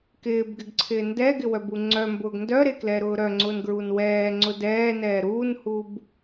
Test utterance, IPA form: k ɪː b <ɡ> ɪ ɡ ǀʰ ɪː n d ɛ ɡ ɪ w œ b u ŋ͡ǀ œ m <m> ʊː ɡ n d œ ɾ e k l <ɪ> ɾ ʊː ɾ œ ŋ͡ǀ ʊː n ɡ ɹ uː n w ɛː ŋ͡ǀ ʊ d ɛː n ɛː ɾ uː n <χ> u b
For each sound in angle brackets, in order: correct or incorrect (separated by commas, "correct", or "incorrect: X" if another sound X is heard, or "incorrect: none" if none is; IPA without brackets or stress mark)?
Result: correct, incorrect: b, incorrect: ɛ, incorrect: h